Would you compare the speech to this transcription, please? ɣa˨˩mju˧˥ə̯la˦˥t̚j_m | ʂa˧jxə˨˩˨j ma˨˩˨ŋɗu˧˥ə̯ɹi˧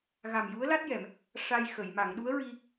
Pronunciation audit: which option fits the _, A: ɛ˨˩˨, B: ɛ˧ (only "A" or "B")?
A